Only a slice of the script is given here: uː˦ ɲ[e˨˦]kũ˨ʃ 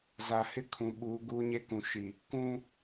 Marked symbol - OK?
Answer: no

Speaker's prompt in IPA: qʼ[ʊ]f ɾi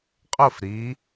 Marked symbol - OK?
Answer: yes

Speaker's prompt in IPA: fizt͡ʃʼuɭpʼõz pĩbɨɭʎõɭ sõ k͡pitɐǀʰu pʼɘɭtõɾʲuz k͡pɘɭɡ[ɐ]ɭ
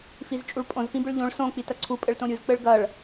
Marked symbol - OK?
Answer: yes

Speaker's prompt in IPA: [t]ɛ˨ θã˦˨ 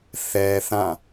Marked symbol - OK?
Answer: no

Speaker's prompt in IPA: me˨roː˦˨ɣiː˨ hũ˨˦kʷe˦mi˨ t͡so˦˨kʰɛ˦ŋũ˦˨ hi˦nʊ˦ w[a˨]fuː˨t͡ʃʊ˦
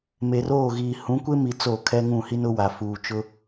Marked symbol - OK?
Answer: yes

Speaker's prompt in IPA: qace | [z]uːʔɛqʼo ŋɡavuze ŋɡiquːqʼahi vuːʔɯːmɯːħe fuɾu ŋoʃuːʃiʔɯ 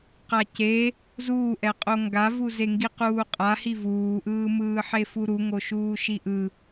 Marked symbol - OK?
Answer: yes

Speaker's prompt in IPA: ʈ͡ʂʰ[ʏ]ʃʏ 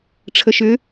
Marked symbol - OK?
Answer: no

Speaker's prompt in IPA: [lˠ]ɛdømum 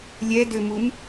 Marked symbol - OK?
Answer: no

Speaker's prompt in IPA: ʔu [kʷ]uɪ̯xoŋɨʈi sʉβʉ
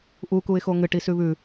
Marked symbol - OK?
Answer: no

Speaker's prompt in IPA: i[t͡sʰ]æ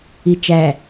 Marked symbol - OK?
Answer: no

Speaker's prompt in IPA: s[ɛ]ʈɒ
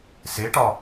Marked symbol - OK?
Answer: no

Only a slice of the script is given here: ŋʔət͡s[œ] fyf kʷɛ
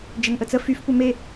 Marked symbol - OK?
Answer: no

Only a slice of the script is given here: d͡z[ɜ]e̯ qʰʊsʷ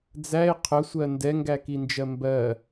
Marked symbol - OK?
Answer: no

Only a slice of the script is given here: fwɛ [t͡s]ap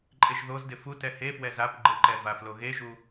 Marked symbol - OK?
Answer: no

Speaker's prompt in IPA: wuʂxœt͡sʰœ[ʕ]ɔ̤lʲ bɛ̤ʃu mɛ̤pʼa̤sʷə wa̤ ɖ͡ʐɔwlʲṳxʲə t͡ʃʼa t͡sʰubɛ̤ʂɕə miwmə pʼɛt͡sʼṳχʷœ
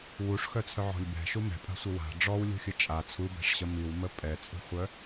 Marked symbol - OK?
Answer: yes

